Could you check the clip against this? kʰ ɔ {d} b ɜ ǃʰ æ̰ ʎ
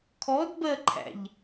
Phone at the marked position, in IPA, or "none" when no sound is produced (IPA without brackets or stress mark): d